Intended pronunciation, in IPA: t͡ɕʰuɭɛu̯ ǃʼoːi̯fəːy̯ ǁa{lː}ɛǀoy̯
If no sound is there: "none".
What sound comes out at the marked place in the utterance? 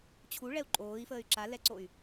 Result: l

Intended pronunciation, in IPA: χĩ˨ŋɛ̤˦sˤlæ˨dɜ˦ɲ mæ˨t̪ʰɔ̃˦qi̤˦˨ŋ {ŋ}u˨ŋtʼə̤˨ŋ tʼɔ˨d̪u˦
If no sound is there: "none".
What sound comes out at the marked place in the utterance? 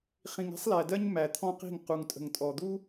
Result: q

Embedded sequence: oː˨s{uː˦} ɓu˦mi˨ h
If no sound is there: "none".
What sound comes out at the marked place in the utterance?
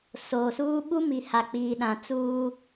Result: uː˦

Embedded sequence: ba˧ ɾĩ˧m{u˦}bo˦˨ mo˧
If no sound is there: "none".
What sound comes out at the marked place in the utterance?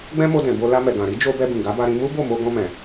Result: u˦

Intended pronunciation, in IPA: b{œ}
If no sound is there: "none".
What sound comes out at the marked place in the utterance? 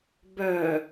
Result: œ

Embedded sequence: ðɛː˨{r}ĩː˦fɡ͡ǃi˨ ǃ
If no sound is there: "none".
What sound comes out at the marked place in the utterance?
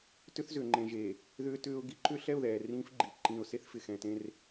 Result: r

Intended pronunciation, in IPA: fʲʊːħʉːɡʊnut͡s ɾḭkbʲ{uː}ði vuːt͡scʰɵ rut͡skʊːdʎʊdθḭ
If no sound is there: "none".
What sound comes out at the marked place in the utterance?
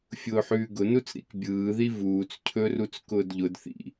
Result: ɯː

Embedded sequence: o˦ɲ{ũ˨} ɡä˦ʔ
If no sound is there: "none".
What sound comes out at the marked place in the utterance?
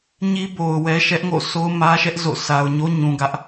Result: ũ˨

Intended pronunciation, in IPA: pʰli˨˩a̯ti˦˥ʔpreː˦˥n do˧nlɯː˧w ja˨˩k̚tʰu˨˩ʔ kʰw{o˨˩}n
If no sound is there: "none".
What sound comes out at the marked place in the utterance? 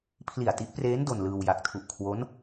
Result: o˦˥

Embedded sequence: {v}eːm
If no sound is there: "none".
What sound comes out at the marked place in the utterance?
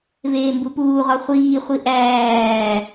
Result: v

